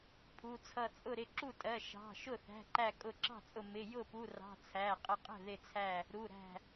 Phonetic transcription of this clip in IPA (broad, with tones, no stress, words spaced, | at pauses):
pʰu˩˧˩t͡sʰʌ˧˩t͡sʼʊ˥˩ɾɪ˥˩ ǁu˥˩tʼɜ˩˧˩ʃɑ̤˩˧˩ʃʊ˥˩ θæ̤˩˧˩ǃæ˧˩ kʼʊ˧˩ǁɑ̤˥˩t͡sʼʊ˧˩ mɪ˩˧˩jʊ˥˩pu˩˧˩rɑ̤˩˧˩ t͡sʰæ˩˧˩qʼə˧˩ qʼə̤˥˩ðɪ˧˩t͡sʰæ˧˩ | ɾu˩˧˩ɾæ̤˧˩